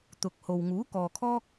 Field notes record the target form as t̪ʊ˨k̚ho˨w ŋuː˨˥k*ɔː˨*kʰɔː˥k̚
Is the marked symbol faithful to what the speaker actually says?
yes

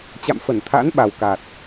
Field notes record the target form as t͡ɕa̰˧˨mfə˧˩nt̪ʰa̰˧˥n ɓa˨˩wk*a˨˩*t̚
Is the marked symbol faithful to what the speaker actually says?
yes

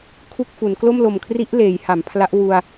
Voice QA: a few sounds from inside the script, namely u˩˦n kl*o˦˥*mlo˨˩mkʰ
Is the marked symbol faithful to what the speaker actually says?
no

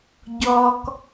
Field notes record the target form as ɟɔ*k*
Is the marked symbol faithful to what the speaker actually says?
yes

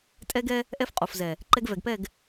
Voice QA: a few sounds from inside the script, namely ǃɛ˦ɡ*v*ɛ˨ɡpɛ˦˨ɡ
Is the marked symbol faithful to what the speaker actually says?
yes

